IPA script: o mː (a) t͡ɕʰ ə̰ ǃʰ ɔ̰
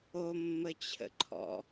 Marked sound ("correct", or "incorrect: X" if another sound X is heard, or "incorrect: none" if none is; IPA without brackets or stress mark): incorrect: ə